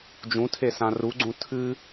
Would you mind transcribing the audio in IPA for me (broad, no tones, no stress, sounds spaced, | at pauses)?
d͡ʒ ũ tʰ e s ã r u ɡ͡ǀ ũ tʰ ɨ